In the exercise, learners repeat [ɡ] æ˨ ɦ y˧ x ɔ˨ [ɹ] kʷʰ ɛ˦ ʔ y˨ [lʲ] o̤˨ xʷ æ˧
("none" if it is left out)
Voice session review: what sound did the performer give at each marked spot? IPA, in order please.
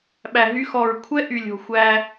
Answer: ɓ, ɹ, lʲ

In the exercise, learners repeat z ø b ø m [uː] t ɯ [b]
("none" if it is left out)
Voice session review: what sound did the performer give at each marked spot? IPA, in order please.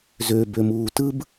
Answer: uː, b

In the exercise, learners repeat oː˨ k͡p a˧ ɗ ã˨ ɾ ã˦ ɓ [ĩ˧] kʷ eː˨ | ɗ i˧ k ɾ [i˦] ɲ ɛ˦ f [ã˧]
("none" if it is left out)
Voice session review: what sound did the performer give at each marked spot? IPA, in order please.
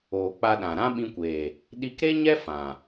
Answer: ĩ˧, e˦, ã˨

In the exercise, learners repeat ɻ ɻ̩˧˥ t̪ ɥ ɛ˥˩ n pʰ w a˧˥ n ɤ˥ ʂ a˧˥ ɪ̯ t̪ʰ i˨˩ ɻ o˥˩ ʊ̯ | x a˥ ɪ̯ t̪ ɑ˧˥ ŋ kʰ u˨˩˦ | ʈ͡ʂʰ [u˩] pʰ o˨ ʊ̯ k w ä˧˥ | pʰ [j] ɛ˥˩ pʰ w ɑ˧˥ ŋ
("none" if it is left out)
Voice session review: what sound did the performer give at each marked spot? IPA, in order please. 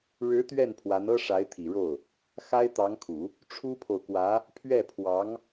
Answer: u˥, ɥ

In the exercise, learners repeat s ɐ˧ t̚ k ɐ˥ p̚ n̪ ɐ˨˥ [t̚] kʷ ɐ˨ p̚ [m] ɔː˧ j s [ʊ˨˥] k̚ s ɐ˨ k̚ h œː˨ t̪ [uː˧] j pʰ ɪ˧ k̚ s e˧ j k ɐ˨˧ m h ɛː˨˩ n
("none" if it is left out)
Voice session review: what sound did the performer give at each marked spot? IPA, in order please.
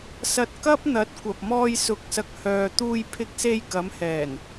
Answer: t̚, m, ʊ˨˥, uː˧

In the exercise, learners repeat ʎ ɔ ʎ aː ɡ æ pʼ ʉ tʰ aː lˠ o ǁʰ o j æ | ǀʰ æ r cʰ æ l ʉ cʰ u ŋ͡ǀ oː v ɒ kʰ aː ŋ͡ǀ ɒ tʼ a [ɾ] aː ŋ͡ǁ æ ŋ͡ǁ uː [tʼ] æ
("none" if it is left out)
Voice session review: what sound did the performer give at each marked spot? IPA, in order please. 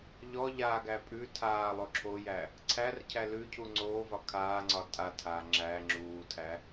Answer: tʰ, tʰ

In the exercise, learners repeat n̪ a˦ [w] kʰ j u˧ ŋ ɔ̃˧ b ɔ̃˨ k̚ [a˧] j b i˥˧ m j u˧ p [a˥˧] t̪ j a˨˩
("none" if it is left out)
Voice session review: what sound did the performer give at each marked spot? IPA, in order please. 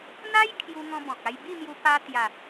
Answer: j, a˧, a˧

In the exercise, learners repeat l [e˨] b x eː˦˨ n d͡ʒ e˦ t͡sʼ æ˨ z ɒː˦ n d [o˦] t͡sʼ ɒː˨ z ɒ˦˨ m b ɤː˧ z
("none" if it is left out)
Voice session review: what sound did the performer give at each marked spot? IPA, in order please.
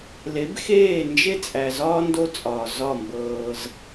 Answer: e˨˦, o˦

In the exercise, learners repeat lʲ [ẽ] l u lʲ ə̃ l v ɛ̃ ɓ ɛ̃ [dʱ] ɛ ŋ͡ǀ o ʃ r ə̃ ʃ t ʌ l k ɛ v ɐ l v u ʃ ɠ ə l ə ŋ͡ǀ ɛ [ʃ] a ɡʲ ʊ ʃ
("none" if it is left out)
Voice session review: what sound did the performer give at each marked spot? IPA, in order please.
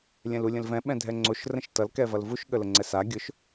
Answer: ɛ̃, dʱ, s

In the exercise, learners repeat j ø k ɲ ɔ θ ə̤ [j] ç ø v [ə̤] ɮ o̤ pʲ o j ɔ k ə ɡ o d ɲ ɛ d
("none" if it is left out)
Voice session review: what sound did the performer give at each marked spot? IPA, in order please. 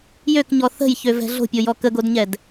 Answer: j, ɛ̤

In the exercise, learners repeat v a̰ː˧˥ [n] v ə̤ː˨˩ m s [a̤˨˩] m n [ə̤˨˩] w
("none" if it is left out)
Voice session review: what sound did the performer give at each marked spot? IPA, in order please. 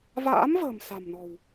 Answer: m, a̤˨˩, ɔ̤˨˩

